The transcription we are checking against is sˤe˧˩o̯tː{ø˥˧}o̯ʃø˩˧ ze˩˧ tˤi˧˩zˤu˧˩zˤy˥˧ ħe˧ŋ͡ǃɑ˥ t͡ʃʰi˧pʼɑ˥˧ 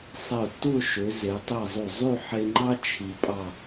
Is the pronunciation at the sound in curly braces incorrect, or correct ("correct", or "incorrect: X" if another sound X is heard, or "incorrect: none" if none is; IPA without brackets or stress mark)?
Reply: incorrect: u˥˧